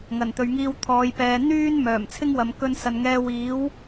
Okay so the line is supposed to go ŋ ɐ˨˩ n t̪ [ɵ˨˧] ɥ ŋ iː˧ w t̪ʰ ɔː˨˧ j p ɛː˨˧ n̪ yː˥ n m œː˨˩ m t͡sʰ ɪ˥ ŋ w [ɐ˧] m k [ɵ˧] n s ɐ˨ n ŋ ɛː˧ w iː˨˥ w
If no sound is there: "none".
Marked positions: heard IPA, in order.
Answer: ɵ˨, ɐ˨, ɵ˧

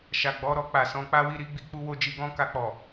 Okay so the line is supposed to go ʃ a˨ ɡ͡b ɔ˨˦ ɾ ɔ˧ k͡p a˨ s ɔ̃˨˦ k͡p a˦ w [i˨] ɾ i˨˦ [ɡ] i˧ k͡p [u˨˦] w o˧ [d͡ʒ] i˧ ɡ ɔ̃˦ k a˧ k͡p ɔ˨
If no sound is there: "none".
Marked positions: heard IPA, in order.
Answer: i˦˨, ɡ͡b, u˧, d͡ʒ

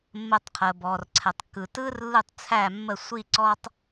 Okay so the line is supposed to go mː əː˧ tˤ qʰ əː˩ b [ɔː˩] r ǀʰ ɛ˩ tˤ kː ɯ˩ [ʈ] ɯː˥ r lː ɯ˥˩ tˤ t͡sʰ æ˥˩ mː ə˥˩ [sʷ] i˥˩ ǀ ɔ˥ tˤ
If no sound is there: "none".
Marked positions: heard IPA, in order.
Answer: ɔː˩, t, sʷ

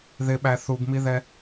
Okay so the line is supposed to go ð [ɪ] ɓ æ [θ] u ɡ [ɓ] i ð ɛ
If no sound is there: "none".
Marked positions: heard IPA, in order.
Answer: ɪ, θ, m

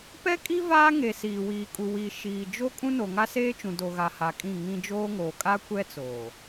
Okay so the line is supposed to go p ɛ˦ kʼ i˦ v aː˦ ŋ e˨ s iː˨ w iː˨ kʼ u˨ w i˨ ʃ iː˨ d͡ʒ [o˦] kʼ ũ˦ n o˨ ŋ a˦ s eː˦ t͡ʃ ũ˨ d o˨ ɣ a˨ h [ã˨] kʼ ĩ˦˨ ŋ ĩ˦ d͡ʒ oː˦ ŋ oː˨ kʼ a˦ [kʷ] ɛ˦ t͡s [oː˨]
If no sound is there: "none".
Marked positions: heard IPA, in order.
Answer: o˦, a˨, kʷ, oː˨

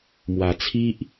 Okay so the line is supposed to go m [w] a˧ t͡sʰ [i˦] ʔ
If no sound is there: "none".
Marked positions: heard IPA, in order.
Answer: w, i˦

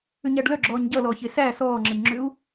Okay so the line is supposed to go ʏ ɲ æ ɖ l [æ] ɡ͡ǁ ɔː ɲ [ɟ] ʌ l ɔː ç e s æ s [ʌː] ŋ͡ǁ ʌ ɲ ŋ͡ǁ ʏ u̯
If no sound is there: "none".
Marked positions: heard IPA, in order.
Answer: œ, ɟ, ɔː

